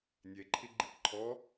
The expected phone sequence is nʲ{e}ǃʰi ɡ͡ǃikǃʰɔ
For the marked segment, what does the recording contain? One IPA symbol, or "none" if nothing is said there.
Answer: e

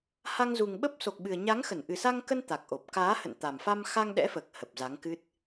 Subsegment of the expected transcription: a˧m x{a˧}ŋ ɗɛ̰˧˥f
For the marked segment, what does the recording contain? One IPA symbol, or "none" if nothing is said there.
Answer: a˧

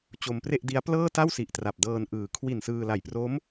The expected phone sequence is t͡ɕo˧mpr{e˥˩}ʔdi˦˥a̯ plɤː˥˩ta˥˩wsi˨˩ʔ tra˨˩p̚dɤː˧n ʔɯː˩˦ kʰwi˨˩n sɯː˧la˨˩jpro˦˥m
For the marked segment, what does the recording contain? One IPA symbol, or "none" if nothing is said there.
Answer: e˥˩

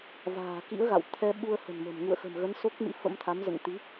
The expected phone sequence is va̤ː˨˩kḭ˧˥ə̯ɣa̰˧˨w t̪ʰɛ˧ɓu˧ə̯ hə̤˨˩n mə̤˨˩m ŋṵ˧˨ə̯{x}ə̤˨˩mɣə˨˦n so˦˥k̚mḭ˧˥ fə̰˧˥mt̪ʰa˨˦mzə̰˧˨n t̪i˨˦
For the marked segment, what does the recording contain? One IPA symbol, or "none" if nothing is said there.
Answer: x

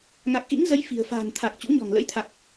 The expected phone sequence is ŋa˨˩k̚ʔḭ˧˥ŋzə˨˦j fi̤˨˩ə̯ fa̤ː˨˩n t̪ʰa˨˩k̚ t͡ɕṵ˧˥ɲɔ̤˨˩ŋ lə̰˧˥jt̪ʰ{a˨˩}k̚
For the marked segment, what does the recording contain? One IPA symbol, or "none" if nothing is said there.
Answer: a˨˩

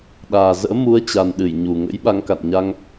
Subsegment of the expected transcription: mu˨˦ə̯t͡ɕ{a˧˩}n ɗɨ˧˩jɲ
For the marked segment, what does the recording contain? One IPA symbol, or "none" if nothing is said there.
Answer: a˨˩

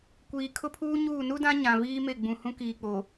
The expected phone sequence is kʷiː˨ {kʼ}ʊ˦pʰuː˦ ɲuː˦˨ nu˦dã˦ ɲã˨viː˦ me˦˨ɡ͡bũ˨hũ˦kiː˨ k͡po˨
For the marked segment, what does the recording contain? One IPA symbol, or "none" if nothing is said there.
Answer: kʰ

